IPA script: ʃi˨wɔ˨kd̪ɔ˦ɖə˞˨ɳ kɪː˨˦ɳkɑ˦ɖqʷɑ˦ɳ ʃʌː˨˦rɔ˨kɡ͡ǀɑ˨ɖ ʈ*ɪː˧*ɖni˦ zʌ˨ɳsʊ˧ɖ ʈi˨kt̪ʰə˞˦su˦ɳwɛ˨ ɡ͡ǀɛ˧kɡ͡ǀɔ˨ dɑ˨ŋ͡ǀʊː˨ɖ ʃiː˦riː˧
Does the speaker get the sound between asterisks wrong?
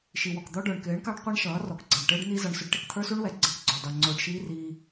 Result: yes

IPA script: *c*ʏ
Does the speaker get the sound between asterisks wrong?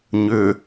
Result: yes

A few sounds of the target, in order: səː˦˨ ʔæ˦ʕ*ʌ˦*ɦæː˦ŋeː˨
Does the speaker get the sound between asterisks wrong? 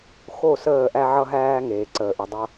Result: no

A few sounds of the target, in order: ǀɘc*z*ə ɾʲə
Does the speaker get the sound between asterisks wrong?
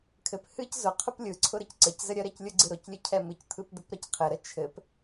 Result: no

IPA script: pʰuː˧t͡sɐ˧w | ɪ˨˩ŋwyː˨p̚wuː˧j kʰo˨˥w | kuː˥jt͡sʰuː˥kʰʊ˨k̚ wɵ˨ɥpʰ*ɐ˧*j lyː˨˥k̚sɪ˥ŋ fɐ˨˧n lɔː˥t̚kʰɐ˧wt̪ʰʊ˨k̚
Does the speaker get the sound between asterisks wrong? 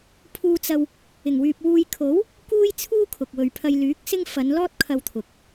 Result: no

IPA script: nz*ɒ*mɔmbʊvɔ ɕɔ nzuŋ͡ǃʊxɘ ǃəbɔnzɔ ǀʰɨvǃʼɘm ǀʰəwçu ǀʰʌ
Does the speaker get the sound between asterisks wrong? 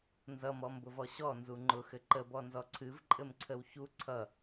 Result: yes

